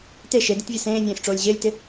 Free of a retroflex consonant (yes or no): no